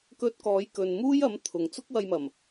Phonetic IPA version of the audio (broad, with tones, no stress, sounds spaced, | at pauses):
k ɵ˧ t̚ k ɔː˨˧ j k ɵ˨ n m uː˥ j ɐ˨˥ m t̪ʰ ʊ˨ ŋ t͡s ʊ˥ k̚ w ɐ˧ j m ɐ˨˩ m